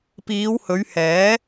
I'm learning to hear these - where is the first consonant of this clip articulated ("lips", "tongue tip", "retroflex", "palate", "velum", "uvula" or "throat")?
lips